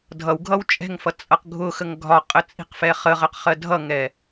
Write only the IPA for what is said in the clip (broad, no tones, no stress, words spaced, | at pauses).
dʱʌwɡʱʌw t͡ʃʼɛ̤ŋfʌ t͡sʼʌqɡʱʊxəŋ ɡʱɒqʼə t͡sʼi̤qfɛχəʁəq χɜdʱʌŋɛ